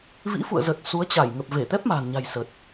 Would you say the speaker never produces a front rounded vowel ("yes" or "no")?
yes